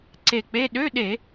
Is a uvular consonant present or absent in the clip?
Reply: absent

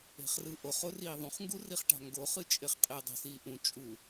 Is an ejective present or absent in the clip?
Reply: present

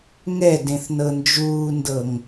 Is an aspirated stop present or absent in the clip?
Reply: absent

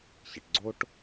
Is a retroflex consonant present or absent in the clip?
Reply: present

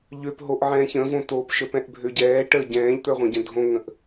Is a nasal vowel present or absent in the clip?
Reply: present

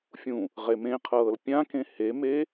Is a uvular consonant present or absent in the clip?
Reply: present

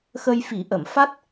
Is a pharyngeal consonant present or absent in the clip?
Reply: absent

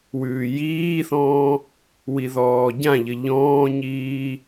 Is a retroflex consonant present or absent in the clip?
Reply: absent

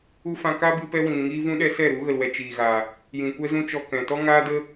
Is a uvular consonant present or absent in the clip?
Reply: absent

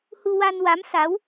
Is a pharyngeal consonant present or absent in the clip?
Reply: absent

